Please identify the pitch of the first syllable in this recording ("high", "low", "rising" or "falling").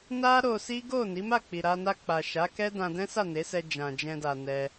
high